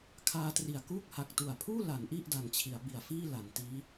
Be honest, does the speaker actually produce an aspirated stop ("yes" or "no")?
yes